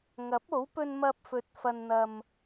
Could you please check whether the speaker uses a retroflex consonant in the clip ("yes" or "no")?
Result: no